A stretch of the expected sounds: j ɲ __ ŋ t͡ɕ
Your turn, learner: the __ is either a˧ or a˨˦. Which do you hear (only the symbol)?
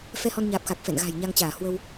a˧